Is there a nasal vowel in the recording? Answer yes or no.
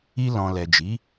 yes